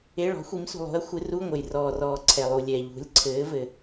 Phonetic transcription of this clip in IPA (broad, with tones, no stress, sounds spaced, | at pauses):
e˧˥˧ ɭ ɔ̤˨˥ xʷ i˨˥ m s ṳ˨ lˠ ṳ˨˥ ɐ̯ xʷ ɨ˨˥ r u˧˥˧ ŋʷ ɘ˨ j r ɔː˨ r ɔː˨ ǀʰ ɛ˨ lˠ u˨ lʲ ɛ˨ ʎ ṳ˨˥ lʲ ǀʰ ɘː˨˥ v ɘ˨